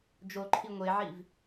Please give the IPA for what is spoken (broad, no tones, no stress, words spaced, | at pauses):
d͡ʒoǃʰi ŋʷeʕiv